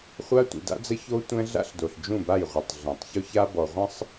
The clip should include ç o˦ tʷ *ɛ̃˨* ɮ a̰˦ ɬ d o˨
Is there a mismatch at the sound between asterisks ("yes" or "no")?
yes